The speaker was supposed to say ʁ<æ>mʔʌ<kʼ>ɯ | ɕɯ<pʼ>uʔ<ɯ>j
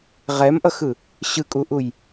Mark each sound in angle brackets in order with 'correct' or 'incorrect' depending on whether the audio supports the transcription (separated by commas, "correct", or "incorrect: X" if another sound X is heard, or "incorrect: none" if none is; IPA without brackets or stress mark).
incorrect: ɛ, incorrect: x, incorrect: kʼ, incorrect: u